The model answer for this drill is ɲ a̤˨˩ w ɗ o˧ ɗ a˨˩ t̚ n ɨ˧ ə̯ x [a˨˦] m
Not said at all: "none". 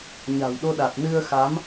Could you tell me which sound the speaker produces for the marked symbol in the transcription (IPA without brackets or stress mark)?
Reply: a˨˦